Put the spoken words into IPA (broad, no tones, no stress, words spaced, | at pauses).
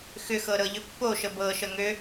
xʏxɤ ɾɤʎʏpːo ʃəbɤʃə ŋø